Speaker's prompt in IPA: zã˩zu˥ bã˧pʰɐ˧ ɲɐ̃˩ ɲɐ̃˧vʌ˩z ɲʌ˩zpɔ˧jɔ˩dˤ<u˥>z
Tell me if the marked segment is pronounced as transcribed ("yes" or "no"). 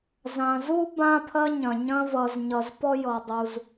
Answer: no